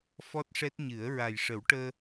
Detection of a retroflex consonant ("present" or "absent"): present